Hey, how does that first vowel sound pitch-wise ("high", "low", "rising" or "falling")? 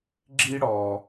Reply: high